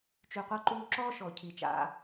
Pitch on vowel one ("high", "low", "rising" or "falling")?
low